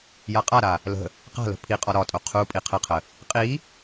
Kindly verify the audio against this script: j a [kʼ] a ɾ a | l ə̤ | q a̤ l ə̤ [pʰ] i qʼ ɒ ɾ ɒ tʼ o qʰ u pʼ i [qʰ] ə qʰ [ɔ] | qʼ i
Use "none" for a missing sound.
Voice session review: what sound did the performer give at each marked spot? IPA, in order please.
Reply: qʼ, pʰ, qʰ, ə

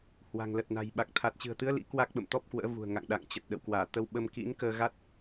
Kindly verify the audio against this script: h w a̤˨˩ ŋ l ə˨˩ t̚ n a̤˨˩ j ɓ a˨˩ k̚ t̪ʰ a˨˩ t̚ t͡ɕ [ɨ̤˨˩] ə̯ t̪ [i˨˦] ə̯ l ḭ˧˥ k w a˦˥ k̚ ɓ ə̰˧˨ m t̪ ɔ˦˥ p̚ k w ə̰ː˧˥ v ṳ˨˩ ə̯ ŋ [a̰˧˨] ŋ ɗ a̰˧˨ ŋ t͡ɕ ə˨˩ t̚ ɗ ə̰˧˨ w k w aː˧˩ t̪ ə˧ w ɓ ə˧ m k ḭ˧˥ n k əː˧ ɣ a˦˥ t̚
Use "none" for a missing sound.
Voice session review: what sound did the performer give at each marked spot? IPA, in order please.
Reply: ɨ̤˨˩, ɨ˨˦, a̰˧˨

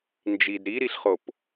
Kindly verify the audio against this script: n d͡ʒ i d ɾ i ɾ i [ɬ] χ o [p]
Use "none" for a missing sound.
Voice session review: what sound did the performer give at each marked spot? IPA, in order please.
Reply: ɬ, p

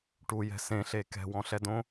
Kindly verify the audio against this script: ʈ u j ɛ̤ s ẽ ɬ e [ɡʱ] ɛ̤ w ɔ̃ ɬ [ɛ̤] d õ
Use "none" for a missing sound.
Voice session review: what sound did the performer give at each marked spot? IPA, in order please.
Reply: k, ɛ

